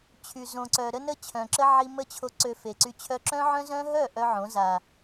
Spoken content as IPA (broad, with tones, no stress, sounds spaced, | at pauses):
t͡ɕʰ y˨ z õ˨ ǀ œ˨ ɾ ə˦ n ə˦ t͡ɕʰ œ̃˨ ǁ ə˦ ʕ i˧ m ə˦˨ t͡ɕʰ o˧ ǀ ø˧ f e˨ ǀ y˧ t͡ɕʰ œ˦ ǁ œ̃˦ ʕ œ̃˦ z œ̃˦ ɦ œ˦˨ ʔ œ˦ ʕ õ˨˦ z a˨